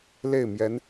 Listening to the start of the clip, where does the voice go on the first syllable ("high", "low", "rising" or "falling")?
falling